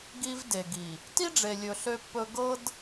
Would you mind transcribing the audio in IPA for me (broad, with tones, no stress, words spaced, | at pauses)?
ɡi˦v de˨ɡi˨ | ti˦ɖ͡ʐe˨lʲɵ˨ ɬø˦pːɵ˦ ɡɤ˦d